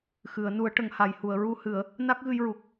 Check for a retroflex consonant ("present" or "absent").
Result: present